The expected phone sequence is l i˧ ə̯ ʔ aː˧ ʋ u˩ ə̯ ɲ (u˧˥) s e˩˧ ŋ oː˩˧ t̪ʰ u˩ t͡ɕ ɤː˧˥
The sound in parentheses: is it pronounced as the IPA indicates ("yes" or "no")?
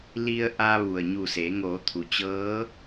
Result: no